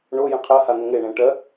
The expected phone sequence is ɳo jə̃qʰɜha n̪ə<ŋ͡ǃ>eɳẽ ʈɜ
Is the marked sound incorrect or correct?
incorrect